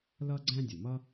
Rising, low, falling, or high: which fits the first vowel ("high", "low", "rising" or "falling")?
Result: high